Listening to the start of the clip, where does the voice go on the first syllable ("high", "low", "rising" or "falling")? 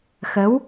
rising